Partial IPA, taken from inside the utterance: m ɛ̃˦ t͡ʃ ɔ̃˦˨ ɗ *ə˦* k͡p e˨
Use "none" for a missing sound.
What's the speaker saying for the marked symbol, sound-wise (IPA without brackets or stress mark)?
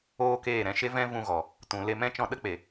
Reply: ə˦